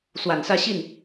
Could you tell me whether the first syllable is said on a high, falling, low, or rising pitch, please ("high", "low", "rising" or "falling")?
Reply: low